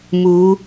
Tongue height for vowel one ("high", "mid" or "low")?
high